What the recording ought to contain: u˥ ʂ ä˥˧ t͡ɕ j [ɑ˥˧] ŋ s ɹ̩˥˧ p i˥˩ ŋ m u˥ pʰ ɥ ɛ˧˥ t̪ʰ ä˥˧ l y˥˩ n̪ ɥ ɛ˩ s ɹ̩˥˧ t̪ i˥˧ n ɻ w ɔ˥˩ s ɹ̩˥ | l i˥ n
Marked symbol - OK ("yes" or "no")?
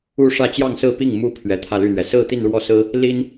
yes